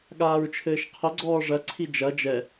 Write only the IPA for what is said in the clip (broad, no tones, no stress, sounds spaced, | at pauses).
ɠ aː ɹ t͡ʃʰ ɘː ʃ qʰ ɘ ɡ͡ǀ ɔː ʐ ɐ ǀʰ i d͡ʒ ɐ d͡ʒ ɛ